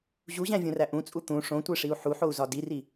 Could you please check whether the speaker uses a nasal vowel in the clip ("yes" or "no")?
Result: yes